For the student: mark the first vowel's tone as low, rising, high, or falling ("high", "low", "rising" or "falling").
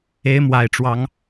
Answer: rising